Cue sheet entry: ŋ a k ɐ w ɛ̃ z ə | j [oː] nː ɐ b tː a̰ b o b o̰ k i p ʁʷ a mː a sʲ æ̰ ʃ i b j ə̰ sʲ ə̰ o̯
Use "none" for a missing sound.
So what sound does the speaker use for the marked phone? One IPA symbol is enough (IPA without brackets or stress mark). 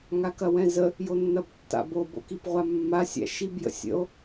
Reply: o